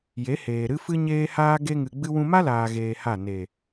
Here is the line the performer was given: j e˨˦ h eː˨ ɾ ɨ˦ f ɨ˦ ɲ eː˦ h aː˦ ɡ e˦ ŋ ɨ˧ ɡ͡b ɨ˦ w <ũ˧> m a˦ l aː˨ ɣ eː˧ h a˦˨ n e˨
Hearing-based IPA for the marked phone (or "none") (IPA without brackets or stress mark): ũ˧